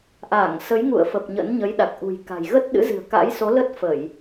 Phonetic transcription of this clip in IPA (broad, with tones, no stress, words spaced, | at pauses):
ʔaː˧˩ŋ sə˨˦jŋṵ˧˨ə̯fə˨˩p̚ ɲə̰˧˥nɲə˨˦jɗa˨˩k̚ ʔṳ˨˩jka̤˨˩j ɣə˦˥t̚ɗɨ̰˧˥zɨ̤˨˩ə̯ ka̰˧˥jso˨˦lə˦˥t̚ fə˧˩˨j